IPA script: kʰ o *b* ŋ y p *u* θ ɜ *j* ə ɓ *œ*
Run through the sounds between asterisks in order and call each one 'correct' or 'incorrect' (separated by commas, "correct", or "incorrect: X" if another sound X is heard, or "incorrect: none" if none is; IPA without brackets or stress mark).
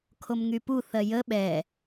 incorrect: m, correct, correct, incorrect: ɛ